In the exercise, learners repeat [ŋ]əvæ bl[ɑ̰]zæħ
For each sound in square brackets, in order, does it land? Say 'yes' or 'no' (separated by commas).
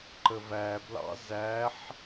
no, yes